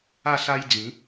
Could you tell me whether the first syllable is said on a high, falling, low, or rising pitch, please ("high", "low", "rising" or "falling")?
falling